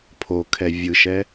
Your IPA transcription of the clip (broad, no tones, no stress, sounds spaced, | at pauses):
pʰ o kʰ ɛ vʲ ɯ ʃ ɛ